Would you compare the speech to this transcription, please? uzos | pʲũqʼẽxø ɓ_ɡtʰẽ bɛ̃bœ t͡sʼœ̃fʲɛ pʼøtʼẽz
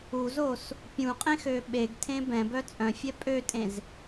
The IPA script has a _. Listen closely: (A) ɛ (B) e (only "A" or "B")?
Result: B